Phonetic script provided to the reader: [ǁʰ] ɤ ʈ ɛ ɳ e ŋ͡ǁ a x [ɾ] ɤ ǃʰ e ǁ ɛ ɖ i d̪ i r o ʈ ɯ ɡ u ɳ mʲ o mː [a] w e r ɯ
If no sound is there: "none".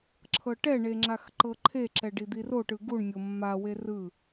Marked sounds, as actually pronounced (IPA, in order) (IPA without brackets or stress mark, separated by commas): ǁʰ, ǃ, a